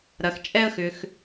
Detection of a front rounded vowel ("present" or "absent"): present